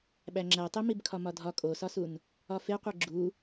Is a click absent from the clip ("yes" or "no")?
no